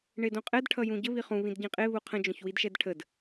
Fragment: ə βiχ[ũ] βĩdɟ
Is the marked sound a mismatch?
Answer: no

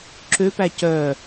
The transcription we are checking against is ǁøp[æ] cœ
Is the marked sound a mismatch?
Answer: no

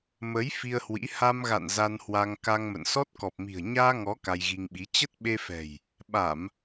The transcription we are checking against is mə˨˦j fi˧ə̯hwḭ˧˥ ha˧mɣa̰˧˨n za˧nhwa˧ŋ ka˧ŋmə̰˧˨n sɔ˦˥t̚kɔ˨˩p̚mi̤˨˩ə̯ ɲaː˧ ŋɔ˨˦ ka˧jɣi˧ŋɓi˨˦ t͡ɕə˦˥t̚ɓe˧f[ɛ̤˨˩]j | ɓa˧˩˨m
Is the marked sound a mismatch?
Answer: no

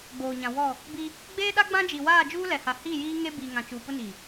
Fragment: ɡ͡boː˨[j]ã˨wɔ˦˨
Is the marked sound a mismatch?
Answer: yes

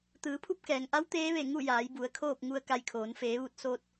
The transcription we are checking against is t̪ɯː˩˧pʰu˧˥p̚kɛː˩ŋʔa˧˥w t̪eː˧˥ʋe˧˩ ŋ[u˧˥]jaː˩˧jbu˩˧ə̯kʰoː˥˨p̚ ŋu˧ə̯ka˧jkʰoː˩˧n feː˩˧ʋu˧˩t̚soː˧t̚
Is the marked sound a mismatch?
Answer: yes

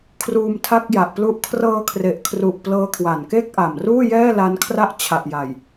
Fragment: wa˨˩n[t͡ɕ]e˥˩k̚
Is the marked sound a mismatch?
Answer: yes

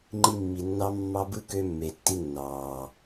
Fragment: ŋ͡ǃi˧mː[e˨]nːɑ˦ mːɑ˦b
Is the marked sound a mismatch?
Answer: yes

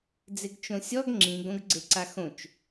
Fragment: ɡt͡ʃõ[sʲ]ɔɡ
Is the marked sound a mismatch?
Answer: no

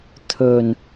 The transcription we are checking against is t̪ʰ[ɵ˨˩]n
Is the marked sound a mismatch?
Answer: no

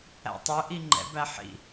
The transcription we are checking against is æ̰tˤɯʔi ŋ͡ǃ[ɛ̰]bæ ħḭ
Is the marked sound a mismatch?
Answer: no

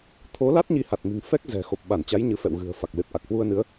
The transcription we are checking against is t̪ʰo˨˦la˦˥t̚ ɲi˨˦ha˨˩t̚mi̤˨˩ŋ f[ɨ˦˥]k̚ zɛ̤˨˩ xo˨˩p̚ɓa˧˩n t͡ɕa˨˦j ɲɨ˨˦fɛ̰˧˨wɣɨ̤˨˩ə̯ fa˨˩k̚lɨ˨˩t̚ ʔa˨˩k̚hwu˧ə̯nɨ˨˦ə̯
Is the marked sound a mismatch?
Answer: yes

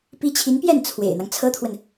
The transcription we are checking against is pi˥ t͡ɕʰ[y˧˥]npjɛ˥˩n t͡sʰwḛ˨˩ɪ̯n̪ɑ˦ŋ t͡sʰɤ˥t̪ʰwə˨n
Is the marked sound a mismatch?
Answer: yes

